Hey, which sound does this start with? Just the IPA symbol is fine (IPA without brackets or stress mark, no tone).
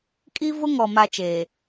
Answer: kʼ